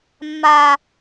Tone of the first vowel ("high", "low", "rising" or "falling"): high